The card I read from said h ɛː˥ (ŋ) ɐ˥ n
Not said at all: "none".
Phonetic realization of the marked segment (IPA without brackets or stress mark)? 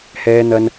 n̪